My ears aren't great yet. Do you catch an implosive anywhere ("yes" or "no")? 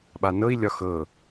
yes